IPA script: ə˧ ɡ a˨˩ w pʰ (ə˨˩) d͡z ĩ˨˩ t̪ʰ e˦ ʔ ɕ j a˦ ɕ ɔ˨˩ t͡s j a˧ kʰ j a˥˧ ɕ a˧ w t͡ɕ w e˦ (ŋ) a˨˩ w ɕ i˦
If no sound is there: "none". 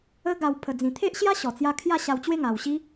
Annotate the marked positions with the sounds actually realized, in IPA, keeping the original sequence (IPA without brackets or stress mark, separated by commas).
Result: ə˨˩, ŋ